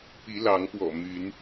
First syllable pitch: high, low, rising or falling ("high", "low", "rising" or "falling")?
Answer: rising